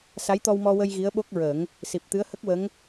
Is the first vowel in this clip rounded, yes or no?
no